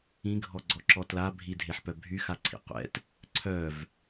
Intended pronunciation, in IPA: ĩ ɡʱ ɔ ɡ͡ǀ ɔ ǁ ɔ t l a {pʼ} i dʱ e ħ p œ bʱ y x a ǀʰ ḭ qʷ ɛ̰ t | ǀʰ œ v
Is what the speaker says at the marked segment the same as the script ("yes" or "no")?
no